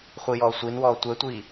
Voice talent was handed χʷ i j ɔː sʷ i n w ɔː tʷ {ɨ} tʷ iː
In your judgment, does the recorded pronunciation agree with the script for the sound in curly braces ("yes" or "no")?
no